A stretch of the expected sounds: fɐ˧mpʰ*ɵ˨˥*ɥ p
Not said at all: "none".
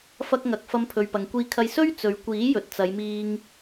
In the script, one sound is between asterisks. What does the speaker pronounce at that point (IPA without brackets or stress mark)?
ɵ˨